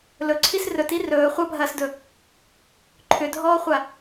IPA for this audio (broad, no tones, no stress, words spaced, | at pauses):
lɵǀʰis rɵti rɵː χʷɐbʱɐːsdɵ | ǃʰʏdʱɔːχʷa